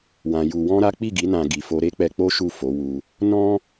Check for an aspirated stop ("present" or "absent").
absent